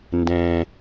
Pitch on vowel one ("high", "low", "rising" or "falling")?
low